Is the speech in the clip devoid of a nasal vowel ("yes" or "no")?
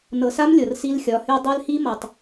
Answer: yes